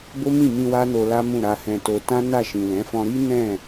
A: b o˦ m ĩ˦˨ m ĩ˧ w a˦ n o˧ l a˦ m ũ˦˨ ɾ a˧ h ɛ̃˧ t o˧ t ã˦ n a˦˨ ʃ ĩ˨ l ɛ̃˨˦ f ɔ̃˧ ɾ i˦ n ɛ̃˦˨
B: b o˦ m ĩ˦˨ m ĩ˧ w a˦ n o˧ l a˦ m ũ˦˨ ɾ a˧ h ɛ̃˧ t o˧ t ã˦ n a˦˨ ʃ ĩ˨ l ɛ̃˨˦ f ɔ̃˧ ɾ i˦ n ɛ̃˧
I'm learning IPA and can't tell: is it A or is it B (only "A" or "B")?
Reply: A